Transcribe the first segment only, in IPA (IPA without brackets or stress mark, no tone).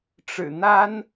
ʈ͡ʂ